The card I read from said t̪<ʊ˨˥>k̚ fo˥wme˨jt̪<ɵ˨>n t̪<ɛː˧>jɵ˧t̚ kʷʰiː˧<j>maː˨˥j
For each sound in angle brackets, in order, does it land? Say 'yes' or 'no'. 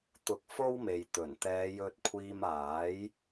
yes, no, no, no

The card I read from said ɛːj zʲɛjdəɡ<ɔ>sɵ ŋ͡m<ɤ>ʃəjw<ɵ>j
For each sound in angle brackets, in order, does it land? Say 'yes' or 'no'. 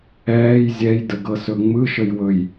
no, no, yes

